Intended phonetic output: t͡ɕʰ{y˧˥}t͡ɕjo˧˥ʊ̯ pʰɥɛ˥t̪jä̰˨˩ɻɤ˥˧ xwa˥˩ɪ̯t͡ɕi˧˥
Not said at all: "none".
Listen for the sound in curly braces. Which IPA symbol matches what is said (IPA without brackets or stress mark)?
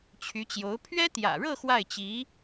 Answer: y˧˥